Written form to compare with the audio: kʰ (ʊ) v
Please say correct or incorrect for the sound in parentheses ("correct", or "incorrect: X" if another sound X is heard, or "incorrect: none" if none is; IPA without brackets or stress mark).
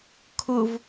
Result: correct